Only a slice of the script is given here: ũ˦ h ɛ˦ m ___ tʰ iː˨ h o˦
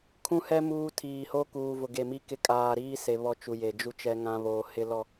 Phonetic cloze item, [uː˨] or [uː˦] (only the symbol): uː˦